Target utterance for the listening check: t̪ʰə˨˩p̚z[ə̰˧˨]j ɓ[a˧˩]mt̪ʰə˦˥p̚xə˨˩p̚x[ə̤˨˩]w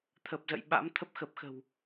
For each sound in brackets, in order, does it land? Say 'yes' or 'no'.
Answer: yes, no, yes

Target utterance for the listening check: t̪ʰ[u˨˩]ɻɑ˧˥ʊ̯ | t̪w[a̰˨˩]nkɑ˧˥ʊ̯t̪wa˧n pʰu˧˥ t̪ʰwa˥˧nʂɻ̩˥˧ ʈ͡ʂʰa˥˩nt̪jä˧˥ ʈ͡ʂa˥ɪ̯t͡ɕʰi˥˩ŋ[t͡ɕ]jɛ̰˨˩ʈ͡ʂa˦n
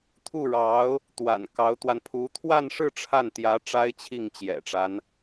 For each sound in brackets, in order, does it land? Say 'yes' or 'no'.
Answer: no, yes, yes

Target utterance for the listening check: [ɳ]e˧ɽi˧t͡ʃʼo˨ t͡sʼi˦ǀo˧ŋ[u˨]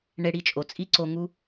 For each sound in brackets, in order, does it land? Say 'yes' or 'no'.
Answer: yes, no

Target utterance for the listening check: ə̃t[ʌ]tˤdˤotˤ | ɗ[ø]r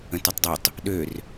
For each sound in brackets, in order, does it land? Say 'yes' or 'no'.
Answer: yes, yes

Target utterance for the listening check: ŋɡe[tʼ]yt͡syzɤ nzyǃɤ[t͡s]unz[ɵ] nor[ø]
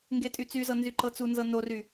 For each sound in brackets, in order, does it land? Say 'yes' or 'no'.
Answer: yes, yes, no, no

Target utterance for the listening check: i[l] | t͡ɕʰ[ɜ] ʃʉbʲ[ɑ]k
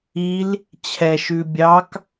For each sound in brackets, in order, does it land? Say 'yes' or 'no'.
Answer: yes, no, yes

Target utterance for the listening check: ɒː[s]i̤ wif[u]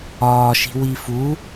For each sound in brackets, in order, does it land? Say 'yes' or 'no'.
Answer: no, yes

